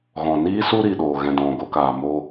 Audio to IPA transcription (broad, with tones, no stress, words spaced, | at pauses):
ɣɔ̃˨niː˦su˦ ɾi˨ɗoː˨ɣɛ̃˨ dɔ̃˨ɡo˧kaː˨mo˧